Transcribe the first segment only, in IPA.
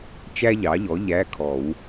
t͡ʃ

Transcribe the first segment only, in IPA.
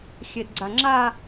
xʲ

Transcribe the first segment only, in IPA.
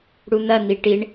ɽ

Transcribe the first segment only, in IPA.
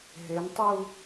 ɦ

